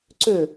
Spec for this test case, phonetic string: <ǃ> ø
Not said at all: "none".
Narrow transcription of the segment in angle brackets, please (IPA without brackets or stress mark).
ǀ